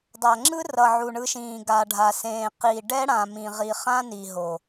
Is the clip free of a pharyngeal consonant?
no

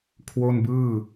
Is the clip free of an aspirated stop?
no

